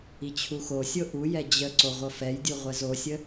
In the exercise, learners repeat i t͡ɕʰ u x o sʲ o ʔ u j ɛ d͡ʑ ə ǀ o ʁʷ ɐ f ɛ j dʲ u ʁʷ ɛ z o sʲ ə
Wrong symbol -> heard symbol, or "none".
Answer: none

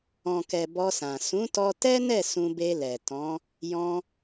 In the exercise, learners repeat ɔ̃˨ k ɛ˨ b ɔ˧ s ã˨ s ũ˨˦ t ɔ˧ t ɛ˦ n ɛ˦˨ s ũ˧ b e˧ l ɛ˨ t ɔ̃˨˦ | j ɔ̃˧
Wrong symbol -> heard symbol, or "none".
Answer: none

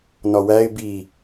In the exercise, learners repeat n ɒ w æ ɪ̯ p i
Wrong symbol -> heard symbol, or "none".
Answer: p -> b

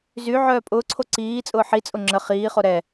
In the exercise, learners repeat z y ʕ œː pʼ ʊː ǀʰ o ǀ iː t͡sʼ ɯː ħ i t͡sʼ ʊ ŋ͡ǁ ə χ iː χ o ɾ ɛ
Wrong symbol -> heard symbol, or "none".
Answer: ɯː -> ʊː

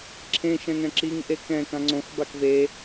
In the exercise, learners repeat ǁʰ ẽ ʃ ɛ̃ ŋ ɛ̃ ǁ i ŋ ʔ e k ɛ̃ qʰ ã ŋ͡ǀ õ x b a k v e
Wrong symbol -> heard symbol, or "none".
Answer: qʰ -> k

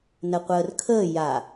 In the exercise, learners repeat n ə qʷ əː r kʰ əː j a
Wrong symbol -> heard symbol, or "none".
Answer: none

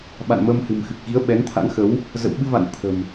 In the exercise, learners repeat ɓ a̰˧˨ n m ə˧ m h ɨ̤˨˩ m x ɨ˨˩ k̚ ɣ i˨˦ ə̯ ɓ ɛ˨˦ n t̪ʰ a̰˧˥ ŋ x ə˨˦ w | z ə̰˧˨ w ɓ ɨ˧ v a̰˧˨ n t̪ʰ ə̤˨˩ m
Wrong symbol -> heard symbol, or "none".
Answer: none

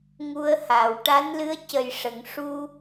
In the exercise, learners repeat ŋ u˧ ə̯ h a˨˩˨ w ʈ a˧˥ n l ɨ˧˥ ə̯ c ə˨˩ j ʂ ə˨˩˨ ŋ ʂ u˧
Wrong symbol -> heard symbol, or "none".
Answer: none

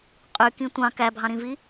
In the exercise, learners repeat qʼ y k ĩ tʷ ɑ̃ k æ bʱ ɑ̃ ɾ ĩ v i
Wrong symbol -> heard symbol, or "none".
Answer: none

